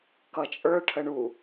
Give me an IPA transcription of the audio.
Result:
k ʌ t͡ʃʼ ə˞ ʈʰ ə ɳ u

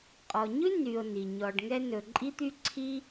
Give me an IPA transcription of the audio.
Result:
qʼ ɔ˨ ɲ ʉ˥ n y˨ o̯ n i˩ ɲ ɔ˨ ɖ ŋ ɛ˥ n ɵ˨ ǃʼ i˥ t̪ y˥ ǀʰ i˥

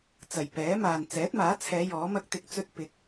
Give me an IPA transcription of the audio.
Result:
t͡s ɐ˨˩ j p ɛː˨˥ m aː˨ n t͡s ɛː˨˥ t̚ m aː˨˥ t͡sʰ ɛː˨˧ j ɔː˨˥ m ɐ˥ k̚ t̪ ɪ˧ k̚ t͡s ɵ˥ t̚ p ɪ˨ k̚

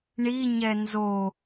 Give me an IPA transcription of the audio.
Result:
ɳ i ɲ ɛ n z o

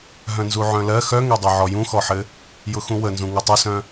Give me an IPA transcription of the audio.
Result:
ɦ œ̃ n z u ʕ œ̃ l ɜ x œ ŋ ɛ dˤ œ ʕ ɔ j ũ x ɔ ħ ɘ | j ʊ x ũ w ə n z ũ ŋ u tˤ ʊ s œ̃

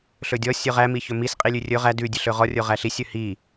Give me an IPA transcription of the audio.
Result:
ɬ ɵ dʲ ɔ sʲ ɵ ʁ æ m i ç ɵ m i s qʼ i lʲ ʉ rʲ ɵ ʁ æ d ʉ dʲ ʉ ɬ ɵ ʁ ɔ rʲ o ʁ æ ɬ i sʲ ɵ h i

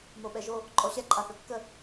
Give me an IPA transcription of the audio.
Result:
m o ɓ ɛ ʒ o | ǃʼ ɔ ɕ ɛ ǃʼ a θ ɵ kː ə

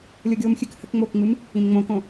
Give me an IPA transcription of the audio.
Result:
lʲ o ɡʲ oː m xʲ ɨ k h ə k ŋ͡m oː k ŋ͡m ɨ m | ĩ m ŋ͡m õ k õ

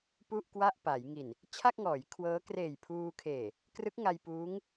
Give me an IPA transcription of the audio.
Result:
p u˥˩ ʔ k w a˥˩ ʔ p a˩˦ j ŋ i˨˩ n | t͡ɕʰ a˥˩ k̚ ŋ ɔː˩˦ j kʰ w ɤː˦˥ k r eː˨˩ j pʰ uː˧ kʰ eː˨˩ | k r ɯ˦˥ k̚ ŋ a˧ j p uː˦˥ ŋ

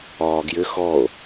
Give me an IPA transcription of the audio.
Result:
ɒː ɡ j ʏ x ɔ o̯

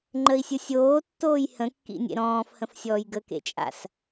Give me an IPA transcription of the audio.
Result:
ŋ͡ǃ ə i̯ sʲ ɯ sʲ oː tː oː j h ə̃ kː ḭ nʲ ḛ ɾ ɔ̃ː f h ə̃ f sʲ ɔː j ɡ ə k ḛ t͡ʃʼ a̰ s

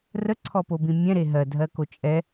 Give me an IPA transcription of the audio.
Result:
r ə ǀʰ ɔ p o b ĩ mʲ ɛ̃ ɾ e ɦ ɜ dʱ ɜ k o t͡ʃʼ ɛ

